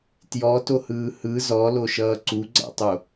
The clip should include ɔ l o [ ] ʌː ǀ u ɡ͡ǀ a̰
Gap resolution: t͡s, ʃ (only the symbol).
ʃ